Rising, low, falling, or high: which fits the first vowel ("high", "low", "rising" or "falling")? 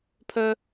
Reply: high